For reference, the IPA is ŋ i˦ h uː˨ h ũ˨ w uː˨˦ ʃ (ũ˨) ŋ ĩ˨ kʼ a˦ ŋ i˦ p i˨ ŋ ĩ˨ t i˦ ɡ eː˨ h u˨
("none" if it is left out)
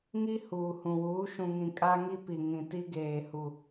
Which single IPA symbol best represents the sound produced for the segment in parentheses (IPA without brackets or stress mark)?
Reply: ũ˨